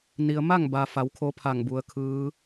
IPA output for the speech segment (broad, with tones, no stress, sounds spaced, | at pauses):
n i˩ ə̯ m a˥˨ ŋ b a˩ f a˩˧ w kʰ o˧˥ pʰ a˧˩ ŋ b u˩˧ ə̯ kʰ ɯː˧˥